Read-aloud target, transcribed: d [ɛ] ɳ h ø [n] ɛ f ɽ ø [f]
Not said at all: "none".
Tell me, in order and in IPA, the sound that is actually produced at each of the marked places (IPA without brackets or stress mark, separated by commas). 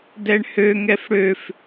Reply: ɛ, ŋ, f